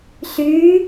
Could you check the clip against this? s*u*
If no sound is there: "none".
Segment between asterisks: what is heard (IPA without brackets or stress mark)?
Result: y